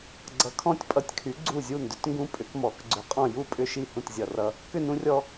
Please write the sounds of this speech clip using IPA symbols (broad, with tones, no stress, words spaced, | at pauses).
ɡ͡ǀʌ˩˥kʰɔ̃˥˩tʲpʼʌ˧˩tʲkʰy˩˥ ɡ͡ǀu˥˩zʲu˥˩ndʏ˦t ŋɡũ˦pʼʏ˩˥kmɔ˩˥k ɡ͡ǀʏ˧˩qʼɔ̃˥˩ ju˥˩pʼʏ˥˩ʃi˥˩ hũ˥˩tzʲʌ˧˩rʌ˦ | kʏ˥˩nũ˦rʲɔ˦